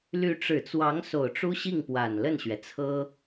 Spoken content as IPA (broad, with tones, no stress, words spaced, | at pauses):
ly˧˥ʈ͡ʂɻ̩˨˩t͡swɑ˧˥ŋ so˨˩ʊ̯ʈ͡ʂu˥ɕi˥˩ŋpwa˨˩n lə˥˩nɕɥɛ˩t͡sʰɤ˥